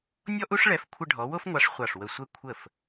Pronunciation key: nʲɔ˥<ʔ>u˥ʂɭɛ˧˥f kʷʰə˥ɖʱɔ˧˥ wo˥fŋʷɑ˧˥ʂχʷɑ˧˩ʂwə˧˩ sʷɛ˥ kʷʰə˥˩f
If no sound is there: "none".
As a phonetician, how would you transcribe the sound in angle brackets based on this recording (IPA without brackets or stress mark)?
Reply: ʔ